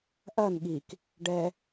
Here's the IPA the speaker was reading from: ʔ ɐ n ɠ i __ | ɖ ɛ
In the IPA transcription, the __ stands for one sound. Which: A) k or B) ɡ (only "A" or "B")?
A